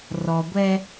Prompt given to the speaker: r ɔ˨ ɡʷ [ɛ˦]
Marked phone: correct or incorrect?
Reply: correct